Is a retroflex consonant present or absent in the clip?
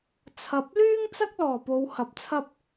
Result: absent